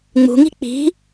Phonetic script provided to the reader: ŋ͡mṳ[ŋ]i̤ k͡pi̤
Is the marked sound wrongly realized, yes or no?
no